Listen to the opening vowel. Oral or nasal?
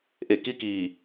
oral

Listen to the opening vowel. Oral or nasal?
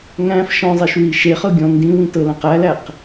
nasal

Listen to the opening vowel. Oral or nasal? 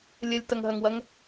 oral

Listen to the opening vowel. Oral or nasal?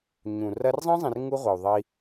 nasal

